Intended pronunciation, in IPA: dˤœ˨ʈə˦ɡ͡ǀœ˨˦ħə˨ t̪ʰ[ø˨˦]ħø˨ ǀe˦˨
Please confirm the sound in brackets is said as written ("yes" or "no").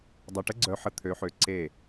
yes